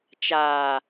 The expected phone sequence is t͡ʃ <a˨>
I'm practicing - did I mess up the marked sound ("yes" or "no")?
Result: yes